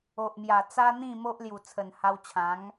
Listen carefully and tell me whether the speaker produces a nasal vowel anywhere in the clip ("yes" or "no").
yes